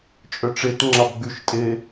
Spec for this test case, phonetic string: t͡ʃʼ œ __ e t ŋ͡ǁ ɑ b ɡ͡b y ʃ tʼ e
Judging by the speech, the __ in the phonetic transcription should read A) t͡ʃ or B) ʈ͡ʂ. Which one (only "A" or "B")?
B